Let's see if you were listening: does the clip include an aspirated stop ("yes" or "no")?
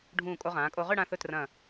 no